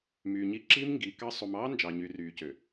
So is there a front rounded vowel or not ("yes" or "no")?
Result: yes